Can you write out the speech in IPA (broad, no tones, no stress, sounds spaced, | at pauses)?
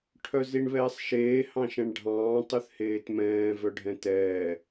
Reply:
ʈʰ œ z i ɳ β ɛː sˤ ʃ eː h ɑ̃ ʃ ɛ̃ ɳ ɖʱ ɑ̃ː tˤ ʉ θ h eː t m ɛ̃ː v œ ɖʱ ɛ̃ t ɛː